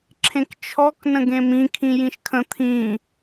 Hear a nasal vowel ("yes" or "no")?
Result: yes